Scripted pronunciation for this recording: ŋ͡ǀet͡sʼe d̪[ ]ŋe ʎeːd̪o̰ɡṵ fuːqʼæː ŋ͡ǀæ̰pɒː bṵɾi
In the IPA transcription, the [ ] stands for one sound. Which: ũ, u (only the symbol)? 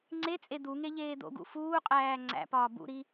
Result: u